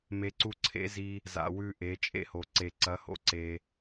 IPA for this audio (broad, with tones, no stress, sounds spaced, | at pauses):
m e˨˦ ǀ u˧ ǀʰ ḛ˨˦ z i˧ | z a̰˨ w ʉ˧ ʔ e˨˦ t͡ʃʼ ḛ˦ h o˨ ǀ e˨ ǀ ɐ˨˦ h o̰˧ ǀ e˧